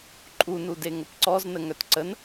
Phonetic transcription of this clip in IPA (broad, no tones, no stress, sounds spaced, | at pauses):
ǃʼ u n u d e ŋ ə p ǀ ɔ z n ə ŋ œ t ǀ ə n